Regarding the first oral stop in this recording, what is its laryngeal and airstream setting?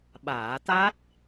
implosive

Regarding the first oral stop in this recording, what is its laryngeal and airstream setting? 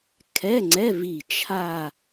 aspirated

